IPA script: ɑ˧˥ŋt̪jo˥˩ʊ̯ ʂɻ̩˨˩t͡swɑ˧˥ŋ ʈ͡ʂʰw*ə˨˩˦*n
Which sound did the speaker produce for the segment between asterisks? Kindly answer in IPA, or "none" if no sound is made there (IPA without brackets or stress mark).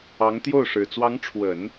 ə˨˩˦